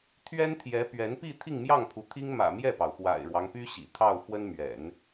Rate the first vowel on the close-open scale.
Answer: mid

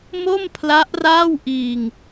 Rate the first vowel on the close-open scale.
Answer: mid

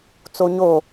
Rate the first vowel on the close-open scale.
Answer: mid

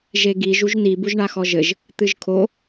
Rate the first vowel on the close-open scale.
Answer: mid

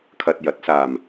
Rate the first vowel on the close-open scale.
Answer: open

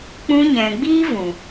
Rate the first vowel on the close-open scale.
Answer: close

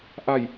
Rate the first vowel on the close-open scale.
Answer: open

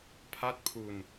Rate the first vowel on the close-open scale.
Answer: open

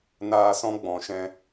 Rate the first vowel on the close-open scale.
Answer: open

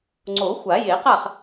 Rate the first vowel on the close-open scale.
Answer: mid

